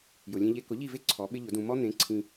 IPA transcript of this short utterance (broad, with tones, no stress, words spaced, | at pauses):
jʊ˩lʲẽ˧ʎe˧ kʊ˩˥ʎi˥˩ve˥ ǀʰɔ˩˥ɓɪ˥ʎʊ˩˥dũ˧ mɔ˥ n̪ẽ˩˥ ǀʰĩ˧